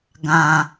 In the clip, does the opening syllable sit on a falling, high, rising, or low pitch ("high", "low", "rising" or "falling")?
low